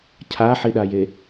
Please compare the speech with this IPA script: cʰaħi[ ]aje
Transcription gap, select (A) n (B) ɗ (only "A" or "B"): B